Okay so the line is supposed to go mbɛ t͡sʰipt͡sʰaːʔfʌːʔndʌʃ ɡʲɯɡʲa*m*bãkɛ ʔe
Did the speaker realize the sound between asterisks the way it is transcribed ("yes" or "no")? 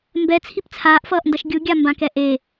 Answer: yes